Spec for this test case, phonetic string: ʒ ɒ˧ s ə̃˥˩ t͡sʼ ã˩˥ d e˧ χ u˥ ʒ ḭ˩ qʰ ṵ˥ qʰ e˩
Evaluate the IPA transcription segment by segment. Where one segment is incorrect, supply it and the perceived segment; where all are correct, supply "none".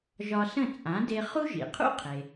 none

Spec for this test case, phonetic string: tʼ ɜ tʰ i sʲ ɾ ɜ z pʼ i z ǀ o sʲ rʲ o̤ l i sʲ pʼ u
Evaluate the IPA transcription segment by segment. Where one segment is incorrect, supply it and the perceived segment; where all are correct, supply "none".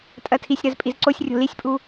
none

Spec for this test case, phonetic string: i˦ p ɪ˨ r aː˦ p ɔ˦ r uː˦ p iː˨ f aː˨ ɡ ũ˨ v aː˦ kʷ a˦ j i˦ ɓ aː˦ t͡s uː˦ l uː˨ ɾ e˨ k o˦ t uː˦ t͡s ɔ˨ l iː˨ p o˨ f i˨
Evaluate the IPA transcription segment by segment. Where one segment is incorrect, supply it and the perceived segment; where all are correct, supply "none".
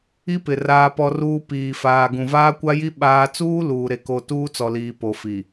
none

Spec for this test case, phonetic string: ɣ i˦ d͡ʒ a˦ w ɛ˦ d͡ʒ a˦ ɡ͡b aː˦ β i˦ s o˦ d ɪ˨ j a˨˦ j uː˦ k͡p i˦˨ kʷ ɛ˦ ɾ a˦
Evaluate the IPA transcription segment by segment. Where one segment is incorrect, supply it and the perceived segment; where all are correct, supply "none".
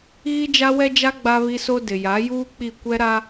aː˦ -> a˦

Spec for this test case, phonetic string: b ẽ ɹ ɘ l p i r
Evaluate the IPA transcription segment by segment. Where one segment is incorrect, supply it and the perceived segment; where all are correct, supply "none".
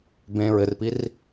l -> r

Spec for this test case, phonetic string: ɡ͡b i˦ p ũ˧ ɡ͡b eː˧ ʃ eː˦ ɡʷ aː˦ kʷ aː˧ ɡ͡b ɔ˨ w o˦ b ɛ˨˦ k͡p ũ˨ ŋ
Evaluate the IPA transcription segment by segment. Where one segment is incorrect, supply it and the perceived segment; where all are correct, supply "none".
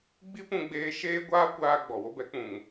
none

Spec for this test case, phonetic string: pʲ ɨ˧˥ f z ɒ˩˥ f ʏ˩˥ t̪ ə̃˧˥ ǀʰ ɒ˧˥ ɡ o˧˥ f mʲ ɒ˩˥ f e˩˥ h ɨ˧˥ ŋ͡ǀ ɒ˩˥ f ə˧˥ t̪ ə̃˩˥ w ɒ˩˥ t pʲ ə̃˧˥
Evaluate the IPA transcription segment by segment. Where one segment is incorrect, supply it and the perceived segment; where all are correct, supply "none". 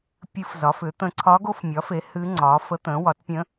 none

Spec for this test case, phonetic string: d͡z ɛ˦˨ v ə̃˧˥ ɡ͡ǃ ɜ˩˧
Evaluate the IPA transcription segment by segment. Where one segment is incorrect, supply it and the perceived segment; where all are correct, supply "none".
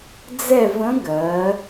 ɡ͡ǃ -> ɡ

